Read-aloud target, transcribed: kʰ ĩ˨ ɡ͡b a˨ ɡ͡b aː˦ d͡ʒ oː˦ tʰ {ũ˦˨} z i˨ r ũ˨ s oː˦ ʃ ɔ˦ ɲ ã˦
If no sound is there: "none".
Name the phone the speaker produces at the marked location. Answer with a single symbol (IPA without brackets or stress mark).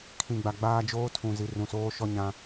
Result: ũ˨